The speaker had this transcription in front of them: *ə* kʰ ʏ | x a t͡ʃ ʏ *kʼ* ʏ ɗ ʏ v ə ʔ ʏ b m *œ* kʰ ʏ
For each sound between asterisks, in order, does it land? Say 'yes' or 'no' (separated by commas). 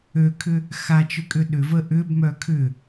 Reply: no, yes, yes